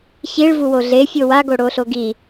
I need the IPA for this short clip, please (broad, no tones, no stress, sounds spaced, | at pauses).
ç i ɭ v u w o ɮ e fʲ o w a ɡ o ɽ o ɬ o ɡ i